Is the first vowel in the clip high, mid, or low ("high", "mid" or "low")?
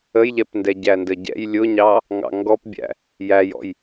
mid